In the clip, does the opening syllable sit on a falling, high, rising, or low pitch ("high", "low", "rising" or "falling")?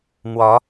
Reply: rising